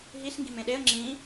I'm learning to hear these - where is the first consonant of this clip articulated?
throat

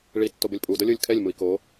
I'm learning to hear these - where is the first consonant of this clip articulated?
retroflex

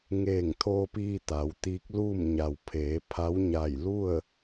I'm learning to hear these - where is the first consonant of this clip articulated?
velum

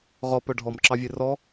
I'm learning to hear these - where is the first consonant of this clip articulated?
uvula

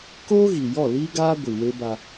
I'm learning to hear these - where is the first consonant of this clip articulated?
velum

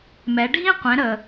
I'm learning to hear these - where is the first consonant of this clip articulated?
lips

